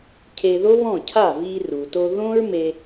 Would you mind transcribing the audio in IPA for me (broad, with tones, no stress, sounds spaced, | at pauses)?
cʰ e˧ ð o˥ β ɔ̃˥˩ cʰ a˥˩ v i˧ r u˩ t o˧ ð õ˥ ɹ m e˧